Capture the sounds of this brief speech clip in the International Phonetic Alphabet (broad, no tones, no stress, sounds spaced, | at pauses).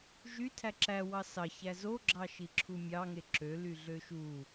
ʒ y tʰ æ ǁ æ w ɑ s ɑ ç æ z o ɡ͡ǁ ɑ ʃ i ǁʰ u mʲ ɑ ŋ e ǁ ø l y ɮ ø ʃ u